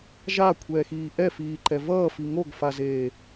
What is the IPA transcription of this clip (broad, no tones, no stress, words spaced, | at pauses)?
ʒakʷʰɛːxiː ʔɛfiːǃɛ vʌː fiŋoɡfazeː